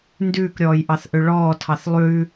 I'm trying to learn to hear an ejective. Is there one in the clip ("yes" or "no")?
no